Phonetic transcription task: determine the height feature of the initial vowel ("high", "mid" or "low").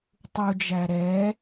high